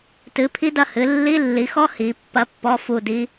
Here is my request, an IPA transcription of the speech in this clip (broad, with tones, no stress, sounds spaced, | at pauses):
t ɨ˨˦ pʰ i˦˥ d ɐ˦˨ h ɨ˨˦ lː i˧˥˧ lː i˨˦ x ɔ˦˥ h i˨˦ pː ɐ˦˥ pː ɔ˧˥˧ f u˦˨ d i˦˥